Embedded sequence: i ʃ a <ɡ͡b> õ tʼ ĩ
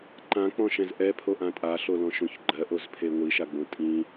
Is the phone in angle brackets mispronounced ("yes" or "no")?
no